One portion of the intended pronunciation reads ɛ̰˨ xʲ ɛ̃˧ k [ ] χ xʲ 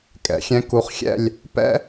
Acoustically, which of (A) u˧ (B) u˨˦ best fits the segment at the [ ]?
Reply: B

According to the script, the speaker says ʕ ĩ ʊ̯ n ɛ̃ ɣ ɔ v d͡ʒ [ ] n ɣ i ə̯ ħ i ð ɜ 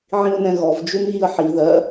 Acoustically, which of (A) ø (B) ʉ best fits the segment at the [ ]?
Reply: B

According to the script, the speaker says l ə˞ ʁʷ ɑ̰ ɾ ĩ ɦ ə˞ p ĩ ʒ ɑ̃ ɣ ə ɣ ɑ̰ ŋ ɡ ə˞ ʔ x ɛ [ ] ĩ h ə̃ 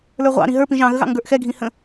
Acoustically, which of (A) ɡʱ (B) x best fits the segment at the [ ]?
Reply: A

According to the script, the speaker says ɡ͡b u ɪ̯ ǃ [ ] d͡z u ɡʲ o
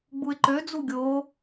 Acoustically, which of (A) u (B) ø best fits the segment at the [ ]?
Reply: B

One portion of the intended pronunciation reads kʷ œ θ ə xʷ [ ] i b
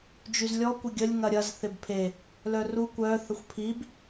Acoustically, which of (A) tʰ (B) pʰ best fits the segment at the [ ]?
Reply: B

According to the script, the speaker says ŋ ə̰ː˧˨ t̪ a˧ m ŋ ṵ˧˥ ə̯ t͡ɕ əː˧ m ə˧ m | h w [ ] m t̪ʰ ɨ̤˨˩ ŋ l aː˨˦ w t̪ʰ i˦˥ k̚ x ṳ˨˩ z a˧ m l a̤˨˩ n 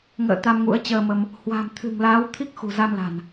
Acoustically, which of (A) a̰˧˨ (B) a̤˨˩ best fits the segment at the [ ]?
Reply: B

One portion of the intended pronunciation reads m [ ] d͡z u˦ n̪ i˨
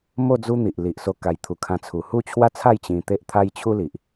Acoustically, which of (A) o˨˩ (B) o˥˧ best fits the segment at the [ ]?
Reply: B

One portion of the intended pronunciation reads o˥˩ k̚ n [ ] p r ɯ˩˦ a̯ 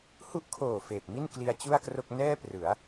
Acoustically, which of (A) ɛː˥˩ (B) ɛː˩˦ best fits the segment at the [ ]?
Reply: A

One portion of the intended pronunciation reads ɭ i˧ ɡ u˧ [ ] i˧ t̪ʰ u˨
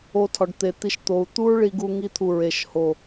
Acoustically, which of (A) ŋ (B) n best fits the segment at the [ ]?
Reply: A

